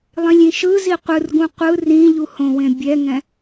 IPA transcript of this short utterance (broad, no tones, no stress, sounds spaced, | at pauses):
lˠ ĩ lʲ ĩ ʃ ɯ z i qʷ ɯ r ɡ ũ qʷ ɯ r ĩ ʎ u h õ w ẽ bʲ ɛ ŋ ɛ̃